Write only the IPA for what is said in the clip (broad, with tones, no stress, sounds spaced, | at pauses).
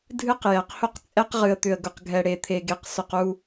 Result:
dʱ ɨ˦ q j ɛ˨ q h ʊ˦ q t͡sʼ ɛ˦ q ʁ ɨ˨ ə̯ t̪ ʏ˨ ə̯ ɡ ʊ˨ q ɡʱ ɛ˨ ɽ e˨ t̪ʰ e˨ ɡ e˨ q s ʊ˨ q u˨